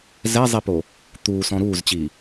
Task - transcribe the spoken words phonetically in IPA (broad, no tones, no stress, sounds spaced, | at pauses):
z ɛ zˤ i p o | t̪ uː s ɔ̃ ɾ uː z t͡ɕ iː